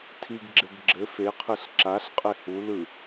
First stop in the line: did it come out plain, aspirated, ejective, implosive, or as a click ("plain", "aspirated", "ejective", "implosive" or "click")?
aspirated